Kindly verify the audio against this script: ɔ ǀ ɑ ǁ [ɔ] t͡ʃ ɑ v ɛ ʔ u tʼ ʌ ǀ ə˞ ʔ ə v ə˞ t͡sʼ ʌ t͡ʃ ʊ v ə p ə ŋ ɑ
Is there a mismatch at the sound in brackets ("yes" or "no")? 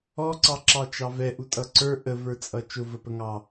yes